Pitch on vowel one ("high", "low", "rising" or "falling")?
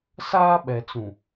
high